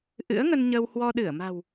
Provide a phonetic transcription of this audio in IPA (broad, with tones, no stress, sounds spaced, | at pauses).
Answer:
ʔ ɨ̰˧˥ ə̯ ŋ ə˧ n ɲ ə˧ w h w ɔ˧ ɗ ɨ˧˩ ə̯ m a̤˨˩ w